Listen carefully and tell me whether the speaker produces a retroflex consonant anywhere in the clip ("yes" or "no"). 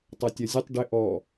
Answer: yes